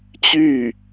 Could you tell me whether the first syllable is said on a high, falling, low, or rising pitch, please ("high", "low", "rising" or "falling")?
falling